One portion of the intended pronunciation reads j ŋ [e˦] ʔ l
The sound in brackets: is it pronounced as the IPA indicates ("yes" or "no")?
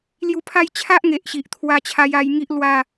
no